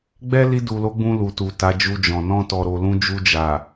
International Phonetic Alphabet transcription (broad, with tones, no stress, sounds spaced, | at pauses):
ɡ͡b ɛ˦ l i˧ d u˨ l o˨˦ ɡ͡b ũ˧ l u˨ t u˨ t a˨˦ d͡ʒ u˧ d͡ʒ ɔ̃˨ n ɔ̃˧ t ɔ˨ ɾ o˨ l ũ˧ d͡ʒ u˧ d͡ʒ a˨